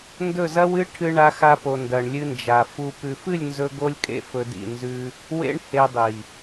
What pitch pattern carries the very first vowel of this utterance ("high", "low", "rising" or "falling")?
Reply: falling